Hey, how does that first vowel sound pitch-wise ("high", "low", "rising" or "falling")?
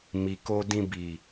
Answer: low